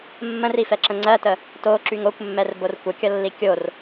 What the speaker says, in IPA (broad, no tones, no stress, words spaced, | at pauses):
mːə̃rifɛǁə̃ ŋ͡ǀɜtə | toǁyŋ okʷmːɛrbor kʷəkʲʌlːi kʲor